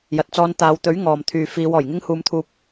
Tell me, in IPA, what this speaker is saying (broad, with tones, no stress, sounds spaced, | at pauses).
j ɐ˨ t̚ t͡s ɔː˧ n t̪ aː˨˧ w t̪ ɵ˨˥ ɥ ŋ ɔː˨ m t̪ʰ yː˨ f iː˨˧ w ɔː˨˩ j ŋ ɪ˥ ŋ h uː˧ m t̪ʰ uː˧ p̚